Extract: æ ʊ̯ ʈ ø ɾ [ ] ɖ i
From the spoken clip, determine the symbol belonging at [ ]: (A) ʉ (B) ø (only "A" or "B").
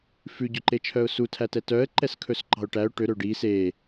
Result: B